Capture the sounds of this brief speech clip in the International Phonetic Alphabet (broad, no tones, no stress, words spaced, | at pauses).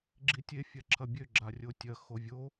ɡ͡ǁitʲe fʲaǁʰɐbʲø ɡ͡ǁarʲotʲɐ xovʲo